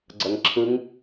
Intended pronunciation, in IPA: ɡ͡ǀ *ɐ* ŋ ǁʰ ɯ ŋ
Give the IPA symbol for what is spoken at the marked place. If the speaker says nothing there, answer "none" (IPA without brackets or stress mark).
ɐ